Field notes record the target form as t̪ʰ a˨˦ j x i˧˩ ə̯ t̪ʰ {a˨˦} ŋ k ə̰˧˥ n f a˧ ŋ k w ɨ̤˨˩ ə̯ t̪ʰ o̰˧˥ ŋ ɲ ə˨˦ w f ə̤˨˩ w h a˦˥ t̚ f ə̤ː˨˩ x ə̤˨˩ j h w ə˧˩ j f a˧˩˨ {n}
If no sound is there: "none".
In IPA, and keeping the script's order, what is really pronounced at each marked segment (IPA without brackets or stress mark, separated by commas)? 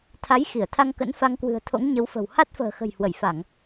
a˧, ŋ